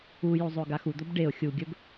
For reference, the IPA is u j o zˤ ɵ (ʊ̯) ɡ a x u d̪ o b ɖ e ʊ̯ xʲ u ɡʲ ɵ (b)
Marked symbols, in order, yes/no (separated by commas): yes, yes